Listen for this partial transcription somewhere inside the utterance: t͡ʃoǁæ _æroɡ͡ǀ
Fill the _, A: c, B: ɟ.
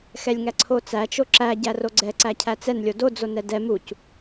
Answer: B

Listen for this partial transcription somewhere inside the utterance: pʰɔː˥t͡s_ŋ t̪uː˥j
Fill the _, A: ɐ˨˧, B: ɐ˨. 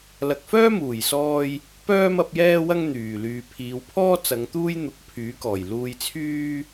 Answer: A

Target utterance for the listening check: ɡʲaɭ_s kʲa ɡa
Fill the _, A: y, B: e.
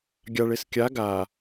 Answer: B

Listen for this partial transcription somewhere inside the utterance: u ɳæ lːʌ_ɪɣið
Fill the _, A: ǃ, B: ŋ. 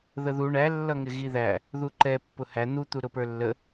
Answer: B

